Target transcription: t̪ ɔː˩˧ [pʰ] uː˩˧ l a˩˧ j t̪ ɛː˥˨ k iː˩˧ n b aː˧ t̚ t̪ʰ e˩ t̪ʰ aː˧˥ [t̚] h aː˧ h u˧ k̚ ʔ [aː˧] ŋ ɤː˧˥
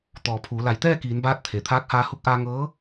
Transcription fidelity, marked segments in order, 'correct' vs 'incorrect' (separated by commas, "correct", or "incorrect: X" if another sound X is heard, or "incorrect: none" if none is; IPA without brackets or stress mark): correct, incorrect: k̚, correct